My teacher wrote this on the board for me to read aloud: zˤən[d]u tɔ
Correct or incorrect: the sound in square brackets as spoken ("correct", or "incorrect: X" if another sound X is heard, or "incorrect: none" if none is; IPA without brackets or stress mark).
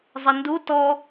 correct